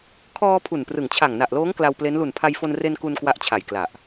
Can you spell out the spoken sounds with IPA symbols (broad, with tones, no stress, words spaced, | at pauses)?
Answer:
kʰɔː˧ pʰu˨˩nprɯ˨˩ŋt͡ɕʰa˨˩ŋ na˨˩ʔloː˦˥ŋ kla˧wple˦˥n lu˨˩npʰa˧jfo˧nre˧n ku˧n kwa˦˥ʔt͡ɕʰa˨˩jkla˨˩ʔ